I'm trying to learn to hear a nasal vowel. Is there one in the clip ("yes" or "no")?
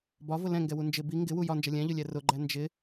yes